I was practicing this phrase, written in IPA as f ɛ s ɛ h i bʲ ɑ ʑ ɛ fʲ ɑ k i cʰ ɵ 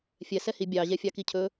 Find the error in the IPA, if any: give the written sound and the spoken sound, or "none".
f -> fʲ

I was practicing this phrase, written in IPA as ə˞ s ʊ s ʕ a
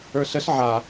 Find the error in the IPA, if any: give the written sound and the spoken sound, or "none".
ʊ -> ə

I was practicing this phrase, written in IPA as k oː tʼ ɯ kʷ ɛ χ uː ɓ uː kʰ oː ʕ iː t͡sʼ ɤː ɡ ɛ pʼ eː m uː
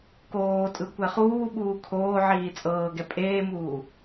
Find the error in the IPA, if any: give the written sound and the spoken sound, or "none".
none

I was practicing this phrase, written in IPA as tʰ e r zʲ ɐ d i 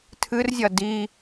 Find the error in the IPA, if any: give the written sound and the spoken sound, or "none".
e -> ɨ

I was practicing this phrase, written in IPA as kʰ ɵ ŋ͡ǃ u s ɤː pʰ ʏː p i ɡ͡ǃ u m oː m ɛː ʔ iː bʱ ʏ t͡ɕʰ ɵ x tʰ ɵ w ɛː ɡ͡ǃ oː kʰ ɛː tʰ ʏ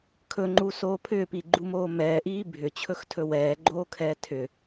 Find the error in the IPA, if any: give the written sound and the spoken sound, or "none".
ɤː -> oː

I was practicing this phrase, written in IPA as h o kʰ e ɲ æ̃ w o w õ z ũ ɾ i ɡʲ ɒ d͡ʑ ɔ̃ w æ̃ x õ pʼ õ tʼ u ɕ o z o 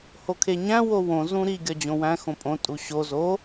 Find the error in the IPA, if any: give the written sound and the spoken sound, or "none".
ɔ̃ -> õ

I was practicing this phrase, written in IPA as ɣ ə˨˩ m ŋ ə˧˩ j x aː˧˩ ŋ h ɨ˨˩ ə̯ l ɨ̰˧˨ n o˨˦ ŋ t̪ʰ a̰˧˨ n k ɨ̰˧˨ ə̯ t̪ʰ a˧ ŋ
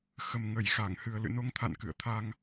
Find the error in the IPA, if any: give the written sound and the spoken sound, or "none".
ɣ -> x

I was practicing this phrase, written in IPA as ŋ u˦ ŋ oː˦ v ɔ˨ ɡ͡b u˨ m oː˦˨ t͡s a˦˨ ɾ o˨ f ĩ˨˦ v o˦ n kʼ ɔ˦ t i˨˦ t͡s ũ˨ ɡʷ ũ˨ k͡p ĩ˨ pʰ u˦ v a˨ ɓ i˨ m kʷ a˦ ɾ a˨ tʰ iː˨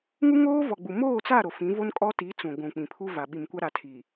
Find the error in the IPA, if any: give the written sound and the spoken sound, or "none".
none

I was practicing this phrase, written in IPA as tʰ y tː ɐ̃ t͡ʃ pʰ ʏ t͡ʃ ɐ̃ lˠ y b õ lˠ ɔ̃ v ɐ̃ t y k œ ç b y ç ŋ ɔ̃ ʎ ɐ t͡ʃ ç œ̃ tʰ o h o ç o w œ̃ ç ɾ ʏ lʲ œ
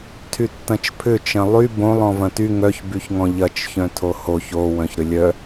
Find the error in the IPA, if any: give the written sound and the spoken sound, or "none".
k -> ŋ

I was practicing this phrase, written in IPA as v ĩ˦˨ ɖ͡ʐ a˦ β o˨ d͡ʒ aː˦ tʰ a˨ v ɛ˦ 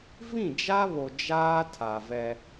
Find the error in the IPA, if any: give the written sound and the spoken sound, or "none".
ɖ͡ʐ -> d͡ʒ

